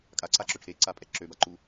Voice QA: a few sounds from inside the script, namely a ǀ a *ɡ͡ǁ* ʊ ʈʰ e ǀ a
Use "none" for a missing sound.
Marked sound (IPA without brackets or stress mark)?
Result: ǁ